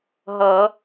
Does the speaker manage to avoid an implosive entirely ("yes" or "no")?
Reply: yes